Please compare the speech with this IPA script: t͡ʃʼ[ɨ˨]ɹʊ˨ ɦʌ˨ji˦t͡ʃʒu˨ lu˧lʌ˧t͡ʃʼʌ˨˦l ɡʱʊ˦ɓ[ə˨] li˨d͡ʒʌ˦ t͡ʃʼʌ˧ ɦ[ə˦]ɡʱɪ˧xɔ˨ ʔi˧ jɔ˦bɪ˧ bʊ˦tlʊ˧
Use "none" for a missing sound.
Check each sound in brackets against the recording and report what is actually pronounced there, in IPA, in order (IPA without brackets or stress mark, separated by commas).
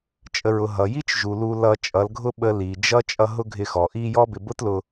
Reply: ə˨, ə˧, ʊ˦